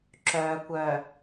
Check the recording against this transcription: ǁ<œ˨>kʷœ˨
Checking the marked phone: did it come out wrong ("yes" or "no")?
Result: yes